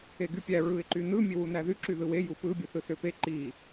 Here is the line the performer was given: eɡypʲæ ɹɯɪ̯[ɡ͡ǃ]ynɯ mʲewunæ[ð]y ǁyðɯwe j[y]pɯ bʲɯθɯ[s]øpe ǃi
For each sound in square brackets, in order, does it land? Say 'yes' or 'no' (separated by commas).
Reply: no, yes, no, yes